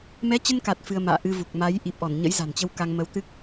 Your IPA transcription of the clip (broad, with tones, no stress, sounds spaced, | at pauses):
m ɛ˨˦ t͡ɕ ə˧ n k a˨˩ t̚ f ɨ˧ ə̯ m a̰ː˧˨ ʔ ɨ˧ v u˨˩ k̚ m a˨˦ j ʔ i˨˩ p̚ ʔ ɔ˧˩ n ɲ ə̰˧˥ j z a̤˨˩ n t͡ɕ ə˧ w k a˧ ŋ m ə˨˦ w t̪ ɨ˦˥ k̚